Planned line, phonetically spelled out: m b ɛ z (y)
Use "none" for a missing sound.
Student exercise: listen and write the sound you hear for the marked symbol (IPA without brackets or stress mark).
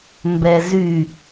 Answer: y